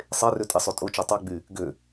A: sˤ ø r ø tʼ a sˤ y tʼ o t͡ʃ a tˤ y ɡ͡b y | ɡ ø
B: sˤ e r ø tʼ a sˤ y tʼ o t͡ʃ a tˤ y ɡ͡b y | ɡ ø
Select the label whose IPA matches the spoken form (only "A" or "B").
B